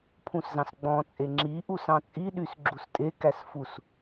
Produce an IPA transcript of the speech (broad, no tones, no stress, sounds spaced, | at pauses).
pʰ ũ s z ɑ̃ s ɡ͡b ɔ̃ t͡sʼ e ŋ͡ǁ i ʔ u s ɑ̃ t͡sʼ i ɗ y s ɡ͡ǁ u s tʼ e k æ s f u s